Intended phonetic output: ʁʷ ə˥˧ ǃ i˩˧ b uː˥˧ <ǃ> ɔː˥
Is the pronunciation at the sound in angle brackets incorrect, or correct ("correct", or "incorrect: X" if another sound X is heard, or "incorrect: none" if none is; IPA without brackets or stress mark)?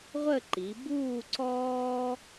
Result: incorrect: ǀ